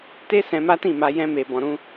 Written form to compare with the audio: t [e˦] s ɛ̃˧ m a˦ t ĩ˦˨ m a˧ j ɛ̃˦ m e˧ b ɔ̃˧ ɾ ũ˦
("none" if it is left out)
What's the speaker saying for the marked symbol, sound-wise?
e˦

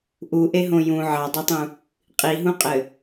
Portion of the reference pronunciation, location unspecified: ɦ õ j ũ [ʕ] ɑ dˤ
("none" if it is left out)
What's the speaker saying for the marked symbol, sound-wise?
ʕ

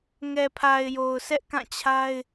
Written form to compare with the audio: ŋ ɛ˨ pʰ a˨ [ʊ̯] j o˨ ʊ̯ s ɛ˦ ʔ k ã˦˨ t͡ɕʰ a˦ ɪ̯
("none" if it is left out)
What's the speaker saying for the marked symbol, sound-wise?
ɪ̯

